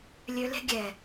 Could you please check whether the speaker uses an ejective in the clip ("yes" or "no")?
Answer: no